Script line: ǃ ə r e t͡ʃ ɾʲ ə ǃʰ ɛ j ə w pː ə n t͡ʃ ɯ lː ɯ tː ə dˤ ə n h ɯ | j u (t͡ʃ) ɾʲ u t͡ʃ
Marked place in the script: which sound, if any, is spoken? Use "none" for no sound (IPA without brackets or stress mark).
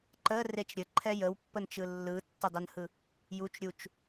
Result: t͡ʃ